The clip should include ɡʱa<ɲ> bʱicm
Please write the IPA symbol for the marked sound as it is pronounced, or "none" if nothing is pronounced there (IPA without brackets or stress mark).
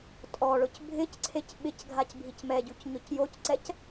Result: c